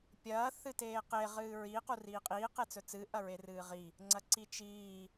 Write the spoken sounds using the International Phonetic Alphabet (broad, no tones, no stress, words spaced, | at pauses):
pʲɐː θɨteːqe ʁɨːɹi quriːqʼiː qet͡sɵt͡sɨ ʔɐɹerɨːʁi | ŋ͡ǀɐǀit͡ʃiː